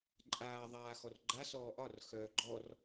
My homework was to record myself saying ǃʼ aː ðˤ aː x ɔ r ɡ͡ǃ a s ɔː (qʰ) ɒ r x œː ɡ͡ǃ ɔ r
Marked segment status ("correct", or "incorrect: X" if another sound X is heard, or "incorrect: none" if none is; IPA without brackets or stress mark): incorrect: ʔ